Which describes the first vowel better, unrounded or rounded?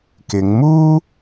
unrounded